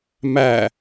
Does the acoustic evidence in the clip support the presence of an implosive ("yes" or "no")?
no